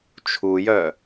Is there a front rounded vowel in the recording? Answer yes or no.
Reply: yes